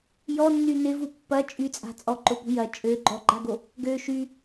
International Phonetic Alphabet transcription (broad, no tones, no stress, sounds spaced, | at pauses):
j ɔ nː y n ɪ v u pː ɐ t͡ʃʼ y t͡sʼ a̤ t͡sʼ ɔ ǃ ʊ p ṳ j ɐ t͡ʃʼ ø ɡ͡ǃ ɔ ɡ͡ǃ a ɡ o | ɡ ø ʃ y